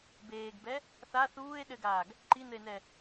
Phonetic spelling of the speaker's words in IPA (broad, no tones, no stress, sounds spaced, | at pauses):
b eː ɡ b ɛ | θ a θ uː e̯ ɗ ɘ ɡ aː ɡ | ǃ i n ɘ e̯ n ɛ